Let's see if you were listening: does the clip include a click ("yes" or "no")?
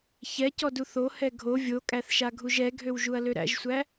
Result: no